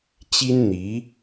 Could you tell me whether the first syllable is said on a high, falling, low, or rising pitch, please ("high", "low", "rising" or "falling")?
high